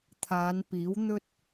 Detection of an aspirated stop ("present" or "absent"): present